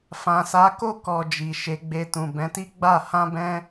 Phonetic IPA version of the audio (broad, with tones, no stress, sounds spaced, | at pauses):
f ã˨ s a˨˦ k o˦˨ k ɔ˨ d͡ʒ i˨ ʃ e˨˦ ɡ͡b e˧ t ũ˨ b ɛ̃˨˦ t i˦ ɡ͡b a˦˨ h ã˧ b ɛ̃˧